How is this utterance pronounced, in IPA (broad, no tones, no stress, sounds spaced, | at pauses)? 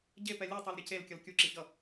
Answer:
ɟ e p ɛ lʲ ɯ tˤ ɛ l ɾʲ ɛ c e l kʲ ʌ l kʲ u ǁ i ç ʌ